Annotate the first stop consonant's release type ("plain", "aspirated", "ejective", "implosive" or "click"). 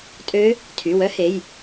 ejective